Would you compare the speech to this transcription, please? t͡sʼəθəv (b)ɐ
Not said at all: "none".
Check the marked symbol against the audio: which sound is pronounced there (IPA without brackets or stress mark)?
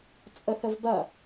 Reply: b